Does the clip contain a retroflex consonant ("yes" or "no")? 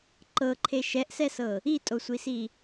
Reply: no